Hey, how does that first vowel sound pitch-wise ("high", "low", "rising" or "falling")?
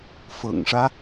low